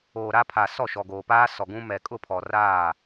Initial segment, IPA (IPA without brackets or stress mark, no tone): oː